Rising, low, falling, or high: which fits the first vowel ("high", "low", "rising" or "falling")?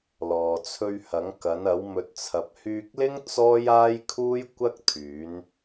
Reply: low